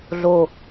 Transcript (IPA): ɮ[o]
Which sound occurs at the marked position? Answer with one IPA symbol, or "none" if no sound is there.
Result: o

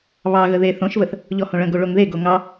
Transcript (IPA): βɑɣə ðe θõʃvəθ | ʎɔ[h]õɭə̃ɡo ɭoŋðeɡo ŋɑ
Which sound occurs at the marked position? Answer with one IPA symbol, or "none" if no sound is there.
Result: h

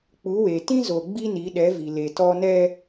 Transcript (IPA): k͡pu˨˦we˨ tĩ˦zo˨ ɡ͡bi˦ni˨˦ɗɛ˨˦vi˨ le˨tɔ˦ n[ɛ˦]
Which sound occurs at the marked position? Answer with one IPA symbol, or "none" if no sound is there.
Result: ɛ˦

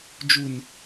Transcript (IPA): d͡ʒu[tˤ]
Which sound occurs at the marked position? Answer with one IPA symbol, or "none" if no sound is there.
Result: n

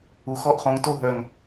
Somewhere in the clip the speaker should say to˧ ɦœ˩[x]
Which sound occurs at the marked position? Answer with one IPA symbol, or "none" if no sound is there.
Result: ŋ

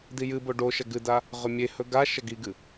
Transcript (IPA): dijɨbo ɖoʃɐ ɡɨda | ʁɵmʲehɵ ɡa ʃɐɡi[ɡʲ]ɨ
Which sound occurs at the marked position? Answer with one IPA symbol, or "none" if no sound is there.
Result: ɡ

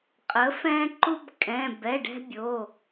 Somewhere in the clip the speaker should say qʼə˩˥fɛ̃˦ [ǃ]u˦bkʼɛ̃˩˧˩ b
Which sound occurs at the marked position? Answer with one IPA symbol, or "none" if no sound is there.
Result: ǃ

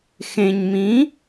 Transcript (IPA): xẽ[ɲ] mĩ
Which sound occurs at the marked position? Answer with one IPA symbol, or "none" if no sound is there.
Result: ɲ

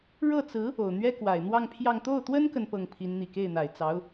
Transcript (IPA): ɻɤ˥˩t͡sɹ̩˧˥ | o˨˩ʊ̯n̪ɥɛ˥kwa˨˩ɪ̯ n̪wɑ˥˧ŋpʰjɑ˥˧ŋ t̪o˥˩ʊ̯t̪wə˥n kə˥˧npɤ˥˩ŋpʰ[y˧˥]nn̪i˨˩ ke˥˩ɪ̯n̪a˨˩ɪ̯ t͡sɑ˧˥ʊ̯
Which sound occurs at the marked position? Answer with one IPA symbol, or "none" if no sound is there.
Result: i˧˥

